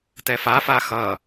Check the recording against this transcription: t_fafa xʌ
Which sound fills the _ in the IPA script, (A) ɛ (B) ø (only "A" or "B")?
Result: A